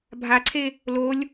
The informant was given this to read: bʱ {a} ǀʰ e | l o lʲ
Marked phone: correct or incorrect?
correct